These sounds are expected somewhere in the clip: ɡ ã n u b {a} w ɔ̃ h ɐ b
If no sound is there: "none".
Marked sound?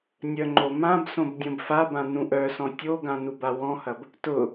a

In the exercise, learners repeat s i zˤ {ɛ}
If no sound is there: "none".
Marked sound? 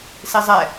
ɛ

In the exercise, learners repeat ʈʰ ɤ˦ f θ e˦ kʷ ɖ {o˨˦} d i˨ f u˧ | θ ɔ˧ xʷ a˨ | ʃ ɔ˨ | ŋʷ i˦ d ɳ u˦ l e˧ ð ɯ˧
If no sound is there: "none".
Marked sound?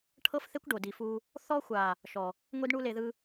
o˨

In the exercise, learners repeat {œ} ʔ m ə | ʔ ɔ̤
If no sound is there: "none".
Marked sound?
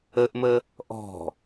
ə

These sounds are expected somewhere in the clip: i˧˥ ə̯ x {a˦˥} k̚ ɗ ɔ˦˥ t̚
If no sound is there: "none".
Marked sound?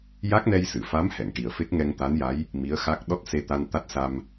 a˦˥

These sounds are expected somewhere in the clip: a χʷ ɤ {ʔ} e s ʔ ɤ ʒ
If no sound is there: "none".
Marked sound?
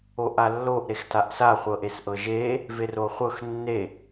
ʔ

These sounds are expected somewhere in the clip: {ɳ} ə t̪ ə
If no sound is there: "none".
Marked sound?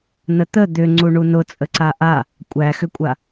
n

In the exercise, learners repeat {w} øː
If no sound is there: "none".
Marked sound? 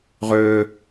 ʁ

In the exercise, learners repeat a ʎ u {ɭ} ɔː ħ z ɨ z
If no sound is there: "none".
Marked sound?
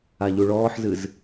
ɭ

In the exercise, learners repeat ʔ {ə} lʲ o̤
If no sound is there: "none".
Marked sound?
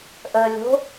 ə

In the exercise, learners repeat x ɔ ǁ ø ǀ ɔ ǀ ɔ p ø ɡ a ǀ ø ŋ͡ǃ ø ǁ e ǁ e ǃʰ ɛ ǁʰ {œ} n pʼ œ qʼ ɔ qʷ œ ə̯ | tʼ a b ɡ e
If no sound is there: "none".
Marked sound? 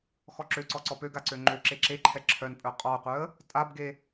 œ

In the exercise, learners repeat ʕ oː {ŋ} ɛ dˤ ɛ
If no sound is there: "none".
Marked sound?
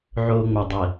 ŋ͡m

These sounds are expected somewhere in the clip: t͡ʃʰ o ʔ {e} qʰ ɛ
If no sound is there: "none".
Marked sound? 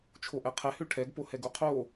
ɛ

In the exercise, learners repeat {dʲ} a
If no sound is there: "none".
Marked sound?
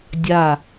dʲ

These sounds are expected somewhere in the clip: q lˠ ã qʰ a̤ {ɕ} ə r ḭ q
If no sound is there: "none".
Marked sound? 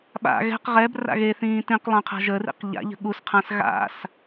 ʒ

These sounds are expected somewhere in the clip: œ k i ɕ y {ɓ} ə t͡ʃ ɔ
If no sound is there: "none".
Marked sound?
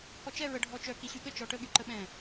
ɠ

